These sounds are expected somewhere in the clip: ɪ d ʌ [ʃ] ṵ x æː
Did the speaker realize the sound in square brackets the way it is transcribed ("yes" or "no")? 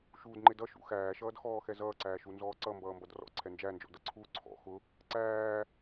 yes